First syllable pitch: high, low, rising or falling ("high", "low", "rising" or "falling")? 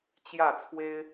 falling